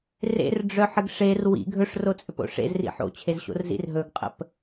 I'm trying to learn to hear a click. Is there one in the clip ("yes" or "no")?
no